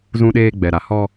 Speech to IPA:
z ũ˦ ɗ eː˦ ɡ͡b ɛ˨ ɾ a˨ h ɔ˦

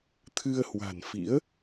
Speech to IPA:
t̪ʰ ɨ˧ ə̯ h w a̤˨˩ n f ḭ˧˥ ə̯

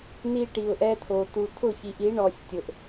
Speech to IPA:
n i˦ ʈ i˨ ʊ̯ ʔ ɛ˦ t̪ʰ o˨ t̪ u˨ t̪ʰ ʊ˦˨ ç i˨ ʔ i˨˦ ɳ ɔ˨ sʲ tʲ ʊ˨ ʔ

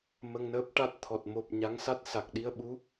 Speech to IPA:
m ə˧ ŋ n əː˦˥ p̚ ʈ a˦˥ t̚ t̪ʰ ɔ˨˩ t̚ m o˨˩ p̚ ɲ a˧˥ ŋ s a˦˥ t̚ s a˨˩ k̚ ɗ i˧ ə̯ ɓ u˧˥

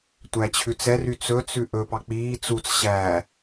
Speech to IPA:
tʷ æ t͡ɕʰ ʉ t͡s ɛ r y t͡s ɵ t͡s ʉ ʔ ɵ p ɑ k͡p iː t͡s u t͡s ɕ æ

